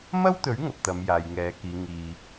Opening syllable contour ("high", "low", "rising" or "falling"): high